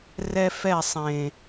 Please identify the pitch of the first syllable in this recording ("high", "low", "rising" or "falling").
high